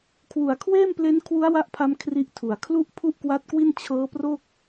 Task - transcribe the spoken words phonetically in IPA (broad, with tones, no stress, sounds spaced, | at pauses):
kʰ w u˨˩ a̯ kʰ w eː˥˩ m p l e˦˥ n kʰ w u˦˥ a̯ w a˦˥ ʔ pʰ a˧ m kʰ r i˦˥ ʔ tʰ u˨˩ a̯ kʰ l u˦˥ ʔ pʰ u˥˩ ʔ k w a˦˥ t̚ k w i˥˩ n t͡ɕʰ ɤː˦˥ p r o˥˩ k̚